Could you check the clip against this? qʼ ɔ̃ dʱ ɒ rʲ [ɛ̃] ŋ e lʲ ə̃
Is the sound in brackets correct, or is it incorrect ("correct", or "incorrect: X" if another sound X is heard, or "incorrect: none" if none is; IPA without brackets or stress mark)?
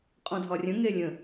incorrect: ə̃